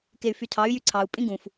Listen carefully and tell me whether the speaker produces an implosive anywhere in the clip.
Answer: no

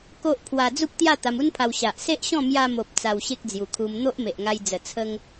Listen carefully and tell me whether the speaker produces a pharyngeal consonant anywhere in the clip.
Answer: no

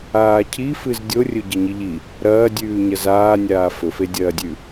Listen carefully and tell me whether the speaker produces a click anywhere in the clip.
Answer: no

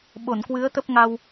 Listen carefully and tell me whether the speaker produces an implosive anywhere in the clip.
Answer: yes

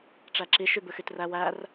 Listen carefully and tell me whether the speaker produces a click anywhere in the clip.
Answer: yes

